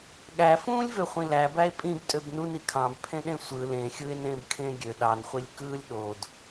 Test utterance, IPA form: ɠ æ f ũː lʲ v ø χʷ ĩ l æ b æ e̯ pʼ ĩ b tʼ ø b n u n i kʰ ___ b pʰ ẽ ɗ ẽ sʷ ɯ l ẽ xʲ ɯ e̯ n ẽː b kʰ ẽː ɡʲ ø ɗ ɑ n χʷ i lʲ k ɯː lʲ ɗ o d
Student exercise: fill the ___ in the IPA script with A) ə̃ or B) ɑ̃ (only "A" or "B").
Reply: B